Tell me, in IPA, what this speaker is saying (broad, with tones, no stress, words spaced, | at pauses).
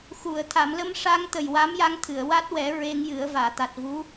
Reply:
xu˨˩˨ə̯ t̪ʰa˨˩˨mlə˧mʂa˧ŋ t̪ə˨˩jwa˧˥mja˧ŋt̪ʰɨ˨˩˨ə̯ wa˦˥t̚wɛ˨˩˦ ɹe˧ŋjɨ˨˩˦ə̯ vaː˨˩˨t̪a˨˩t̚vu˧˥